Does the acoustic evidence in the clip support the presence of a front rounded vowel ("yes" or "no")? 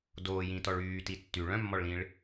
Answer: yes